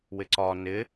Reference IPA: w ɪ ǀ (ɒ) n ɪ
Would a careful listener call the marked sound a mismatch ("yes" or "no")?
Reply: no